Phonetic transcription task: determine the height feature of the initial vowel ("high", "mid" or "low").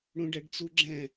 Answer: high